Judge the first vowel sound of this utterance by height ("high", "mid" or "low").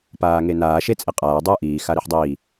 low